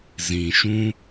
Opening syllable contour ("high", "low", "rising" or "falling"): low